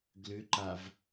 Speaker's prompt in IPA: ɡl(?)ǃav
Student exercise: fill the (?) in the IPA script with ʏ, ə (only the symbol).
ʏ